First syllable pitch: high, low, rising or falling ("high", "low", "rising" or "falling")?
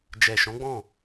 low